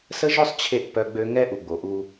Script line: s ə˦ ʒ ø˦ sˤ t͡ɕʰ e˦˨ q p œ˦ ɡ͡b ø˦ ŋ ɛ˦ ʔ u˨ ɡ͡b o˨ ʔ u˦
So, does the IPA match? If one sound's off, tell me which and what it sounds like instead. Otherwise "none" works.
q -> ʔ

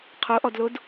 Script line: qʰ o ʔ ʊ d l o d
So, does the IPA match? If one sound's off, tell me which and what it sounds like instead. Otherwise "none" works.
ʊ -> ɔ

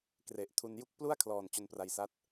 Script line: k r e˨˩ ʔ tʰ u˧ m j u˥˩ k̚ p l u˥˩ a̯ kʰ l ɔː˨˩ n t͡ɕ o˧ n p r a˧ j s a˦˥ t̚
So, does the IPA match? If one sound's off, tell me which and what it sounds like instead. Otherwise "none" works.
m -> n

